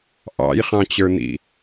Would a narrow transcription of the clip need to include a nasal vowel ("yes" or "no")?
yes